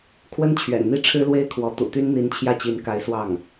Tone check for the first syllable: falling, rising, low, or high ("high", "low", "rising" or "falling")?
high